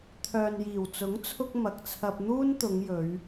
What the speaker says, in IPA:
t̪ʰ œː˨ n j iː˨˩ w t͡s ʊ˨˥ ŋ t͡sʰ ʊ˧ k̚ m ɐ˨ k̚ t͡sʰ ɐ˧ p̚ n̪ uː˥ n t̪ ʊ˨˧ ŋ j ɵ˨˧ ɥ

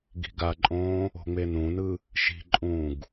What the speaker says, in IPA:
ɡ i̤ ɡ a ǃʼ õː | o̤ ŋ͡m e n ũ n ɯ | ʃ i̤ ǃʼ ũː ɡ

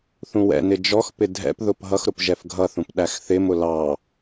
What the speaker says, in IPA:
θ ũ w ɛ̰ n ɪ d͡ʒ ɔ x p ɪ dʱ ɛ̰ p ð ʊ p ɦ ʌ x ɾ ʊ p ʒ ɛ f ɡʱ ʌ θ ũ p ɗ æ x θ ɪ m ʊ l ɑ

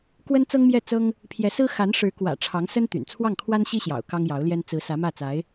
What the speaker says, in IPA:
k w ə˥ n t͡s ɤ˥ ŋ m j ɛ˥˩ t͡s ɤ˥ ŋ | pʰ j ɛ˧˥ s ɹ̩˥ x a˧˥ n ʂ ɻ̩˧˥ k w ä̰˨˩ ʈ͡ʂʰ ɑ˧˥ ŋ s ə˥ n t̪ y̰˨˩ n t͡sʰ w ɑ˥˩ ŋ kʰ w a˥ n ɕ i˥ ɕ j ɑ̰˨˩ ʊ̯ k ɑ˥ ŋ j ɑ˧˥ ʊ̯ l j ɛ˥ n t͡s ɹ̩˧˥ s ä˧˥ m ä˥˩ t͡s a˧˥ ɪ̯

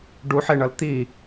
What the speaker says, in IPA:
ɖ u ħ e ɳ ʌ l t̪ i

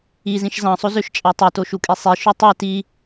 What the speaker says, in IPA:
i z ĩ ʃ z ɑ̃ sˤ o z ø ʃ t͡ʃʼ ɑ tˤ i t o ʃ u kʼ i sˤ i ʃ ø tˤ e t i

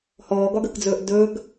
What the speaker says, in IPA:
h ɔː ɡ ɒ ɡ ə k d͡z ɵː ʔ d ɵː ɡ

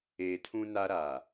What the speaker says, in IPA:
eː˨ tʰ ũ˦ n a˦ ɾ aː˨

